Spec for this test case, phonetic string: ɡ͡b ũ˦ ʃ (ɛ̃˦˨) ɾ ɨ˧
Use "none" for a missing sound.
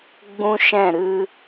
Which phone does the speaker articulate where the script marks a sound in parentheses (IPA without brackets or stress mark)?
ɛ̃˦˨